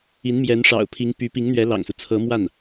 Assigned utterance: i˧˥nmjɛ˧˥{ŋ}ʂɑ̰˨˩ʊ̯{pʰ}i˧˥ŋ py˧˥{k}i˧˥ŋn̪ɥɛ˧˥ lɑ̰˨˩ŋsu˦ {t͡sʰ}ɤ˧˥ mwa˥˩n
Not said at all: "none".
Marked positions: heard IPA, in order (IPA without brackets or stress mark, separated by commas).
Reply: n, pʰ, p, t͡sʰ